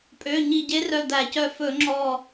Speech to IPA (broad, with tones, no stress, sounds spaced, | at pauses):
pʼ ø˩˧˩ ɲ i˧˩ ɟ e˧˥ r œ˧˩ d̪ æ˧˩˧ c œ˧˩ f ɵ˧˩˧ ŋ͡ǁ ɔ˧˩